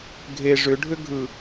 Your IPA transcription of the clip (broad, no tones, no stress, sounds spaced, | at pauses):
ɡʱ e ʐ ʏ ɖʱ ʏ ɡʱ ɯ